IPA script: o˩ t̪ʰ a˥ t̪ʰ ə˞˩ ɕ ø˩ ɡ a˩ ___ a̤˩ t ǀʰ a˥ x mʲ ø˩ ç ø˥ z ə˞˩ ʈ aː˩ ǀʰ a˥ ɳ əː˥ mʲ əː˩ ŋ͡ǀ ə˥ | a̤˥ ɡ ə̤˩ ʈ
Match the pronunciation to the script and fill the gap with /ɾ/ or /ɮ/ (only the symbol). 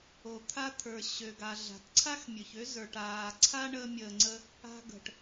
ɮ